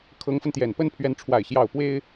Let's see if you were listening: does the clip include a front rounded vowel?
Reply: no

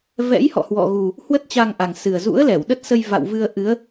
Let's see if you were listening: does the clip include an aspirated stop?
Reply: no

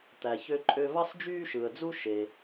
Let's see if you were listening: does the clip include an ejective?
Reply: yes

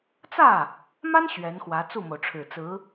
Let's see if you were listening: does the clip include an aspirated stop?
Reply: yes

